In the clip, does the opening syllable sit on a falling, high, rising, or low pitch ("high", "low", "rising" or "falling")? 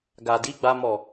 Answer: low